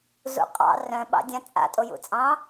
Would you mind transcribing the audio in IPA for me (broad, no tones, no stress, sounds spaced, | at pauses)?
z ṵ qʼ ɑ̰ r œ̃ ɓ ɑ̰ dʲ ã t͡sʼ a̰ tʼ o j ṵ t͡sʼ ɑ̃